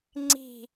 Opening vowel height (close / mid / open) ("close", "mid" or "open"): close